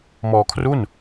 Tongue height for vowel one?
mid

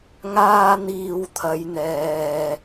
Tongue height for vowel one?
low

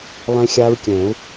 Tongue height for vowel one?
mid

